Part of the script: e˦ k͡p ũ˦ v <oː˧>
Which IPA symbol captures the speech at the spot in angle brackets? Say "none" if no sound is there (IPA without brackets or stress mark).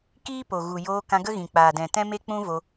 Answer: o˧